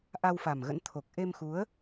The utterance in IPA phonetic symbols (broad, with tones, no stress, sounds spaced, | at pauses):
ʔ a˧ w f a˨˩ m ɣ ə̰˧˥ n t̪ʰ o˨˩ k̚ ʔ e˧ m x u˨˦ ə̯